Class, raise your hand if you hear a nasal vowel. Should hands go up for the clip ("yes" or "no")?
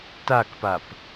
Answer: no